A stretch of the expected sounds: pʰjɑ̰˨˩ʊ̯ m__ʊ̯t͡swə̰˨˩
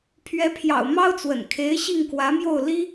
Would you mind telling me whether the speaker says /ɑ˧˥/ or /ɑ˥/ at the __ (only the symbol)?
ɑ˥